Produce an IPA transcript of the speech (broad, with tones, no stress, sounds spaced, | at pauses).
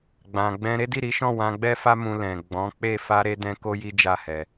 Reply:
ɡ͡b ã˨ ɡ͡b ɛ̃˧ ɾ e˦ d i˦˨ ɾ i˨˦ ʃ ɔ̃˦˨ w ã˧ ɡ͡b ɛ˦ f a˦ m ũ˧ l ɛ̃˨ ɡ͡b ɔ̃˨˦ k͡p e˦˨ f a˧ ɾ e˧ d ɛ̃˧ k o˦ j i˦ d͡ʒ a˦˨ h ɛ˧